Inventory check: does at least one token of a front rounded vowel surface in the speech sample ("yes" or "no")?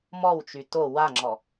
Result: yes